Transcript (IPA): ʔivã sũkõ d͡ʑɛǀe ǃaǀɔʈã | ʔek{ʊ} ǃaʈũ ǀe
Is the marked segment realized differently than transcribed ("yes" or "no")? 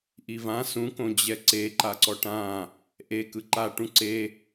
yes